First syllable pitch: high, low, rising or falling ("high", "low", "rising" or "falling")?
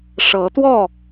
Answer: rising